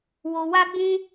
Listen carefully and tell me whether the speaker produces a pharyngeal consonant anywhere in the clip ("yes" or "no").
no